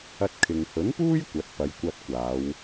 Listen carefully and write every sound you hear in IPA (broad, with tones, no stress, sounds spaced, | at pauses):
ɐ˧ t̚ kʰ ɪ˨ ŋ h ɵ˨˥ n p uː˥ j kʷ ɐ˨˥ t̚ p ɐ˨˧ j kʷ ɐ˧ t̚ kʷ aː˨˧ w